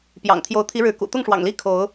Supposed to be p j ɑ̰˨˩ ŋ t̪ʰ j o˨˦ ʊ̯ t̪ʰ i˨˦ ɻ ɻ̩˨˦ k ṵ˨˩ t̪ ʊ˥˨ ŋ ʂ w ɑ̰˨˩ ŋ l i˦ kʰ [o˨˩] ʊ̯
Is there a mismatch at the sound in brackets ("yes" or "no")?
yes